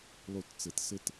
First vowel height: high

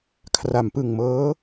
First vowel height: low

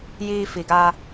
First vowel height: high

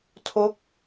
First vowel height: mid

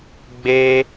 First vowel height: mid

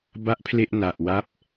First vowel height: low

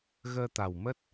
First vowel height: mid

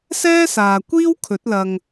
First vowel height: mid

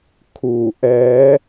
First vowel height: high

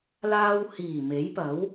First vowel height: low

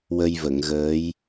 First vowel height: mid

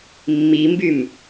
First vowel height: high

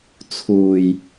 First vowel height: high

